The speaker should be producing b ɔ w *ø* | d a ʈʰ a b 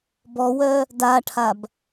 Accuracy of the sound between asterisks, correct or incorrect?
incorrect